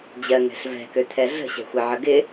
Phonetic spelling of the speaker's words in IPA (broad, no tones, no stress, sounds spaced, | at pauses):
d͡ʑ ɜ ŋ ɛ̤ ɬ v ɛ̤ k ø t̪ʰ ɛ ɮ ə̤ ɕ ɛ̤ xʷ ɛ ʕ ə ɡ ɪ